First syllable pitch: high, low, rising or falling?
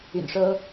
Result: low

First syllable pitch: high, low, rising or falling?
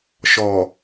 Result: low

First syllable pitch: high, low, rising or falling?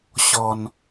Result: low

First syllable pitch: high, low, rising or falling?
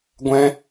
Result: high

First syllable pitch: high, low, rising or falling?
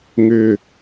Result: falling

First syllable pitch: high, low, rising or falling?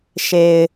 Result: low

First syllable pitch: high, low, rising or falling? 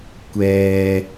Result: low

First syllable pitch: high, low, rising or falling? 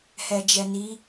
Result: low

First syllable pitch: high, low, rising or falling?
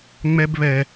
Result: high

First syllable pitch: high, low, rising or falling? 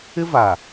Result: high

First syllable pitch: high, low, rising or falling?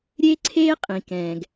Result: high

